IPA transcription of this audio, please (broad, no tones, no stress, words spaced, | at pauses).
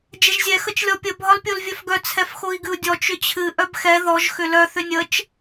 d͡ʒɛʒzʲɛ xət͡ʃlʲɔpʲə bʱɒlpʲolvʲœfɡœ t͡sʰɛfxoi̯ɡɨu̯dʲɔ t͡ʃʏt͡ɕʰɨ ʔœbxɛ ðɔʒ xʏlœ θʏnʲət͡ʃ